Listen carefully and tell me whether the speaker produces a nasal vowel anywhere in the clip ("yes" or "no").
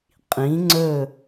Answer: yes